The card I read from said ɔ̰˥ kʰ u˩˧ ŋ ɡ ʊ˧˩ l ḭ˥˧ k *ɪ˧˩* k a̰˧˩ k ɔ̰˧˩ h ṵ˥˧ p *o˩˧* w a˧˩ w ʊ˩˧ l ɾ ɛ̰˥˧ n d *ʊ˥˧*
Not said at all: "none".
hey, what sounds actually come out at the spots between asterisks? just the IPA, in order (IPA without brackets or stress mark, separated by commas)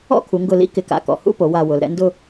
ɪ˧˩, o˩˧, ʊ˥˧